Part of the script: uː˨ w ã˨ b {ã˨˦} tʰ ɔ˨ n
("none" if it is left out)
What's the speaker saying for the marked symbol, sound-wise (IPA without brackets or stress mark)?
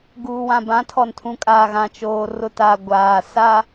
ã˨˦